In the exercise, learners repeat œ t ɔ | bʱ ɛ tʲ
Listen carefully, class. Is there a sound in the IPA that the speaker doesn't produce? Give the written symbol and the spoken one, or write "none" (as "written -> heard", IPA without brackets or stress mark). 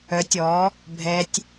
t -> tʲ